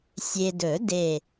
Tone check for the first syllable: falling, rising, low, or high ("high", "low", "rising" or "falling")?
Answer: low